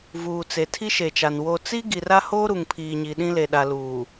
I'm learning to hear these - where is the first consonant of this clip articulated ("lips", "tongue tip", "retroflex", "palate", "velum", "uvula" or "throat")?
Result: lips